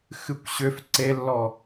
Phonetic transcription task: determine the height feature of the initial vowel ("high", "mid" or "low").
high